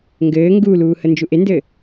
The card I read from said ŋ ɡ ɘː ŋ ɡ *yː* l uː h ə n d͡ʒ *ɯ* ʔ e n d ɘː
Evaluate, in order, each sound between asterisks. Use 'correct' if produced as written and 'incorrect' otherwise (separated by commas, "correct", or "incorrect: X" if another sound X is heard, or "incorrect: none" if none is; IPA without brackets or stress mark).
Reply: incorrect: uː, incorrect: u